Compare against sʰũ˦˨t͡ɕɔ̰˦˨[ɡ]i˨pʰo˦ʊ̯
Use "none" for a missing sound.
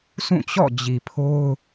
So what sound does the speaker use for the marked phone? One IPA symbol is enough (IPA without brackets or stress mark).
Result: d͡ʑ